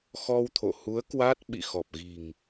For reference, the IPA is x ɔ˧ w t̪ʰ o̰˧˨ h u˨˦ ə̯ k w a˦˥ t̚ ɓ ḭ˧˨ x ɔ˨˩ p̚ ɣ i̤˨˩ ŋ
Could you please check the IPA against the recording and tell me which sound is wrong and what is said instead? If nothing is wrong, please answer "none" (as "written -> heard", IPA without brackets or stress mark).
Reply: none